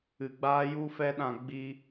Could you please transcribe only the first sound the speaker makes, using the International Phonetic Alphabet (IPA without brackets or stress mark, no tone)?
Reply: ɨ